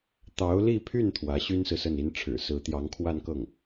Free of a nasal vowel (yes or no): yes